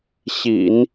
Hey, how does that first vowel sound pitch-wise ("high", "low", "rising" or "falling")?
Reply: low